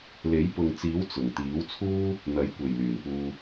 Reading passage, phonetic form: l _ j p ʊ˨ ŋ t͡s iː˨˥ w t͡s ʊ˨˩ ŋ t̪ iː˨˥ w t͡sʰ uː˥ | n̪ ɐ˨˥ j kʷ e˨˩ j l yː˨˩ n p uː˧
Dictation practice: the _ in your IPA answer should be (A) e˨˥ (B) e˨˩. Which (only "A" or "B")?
A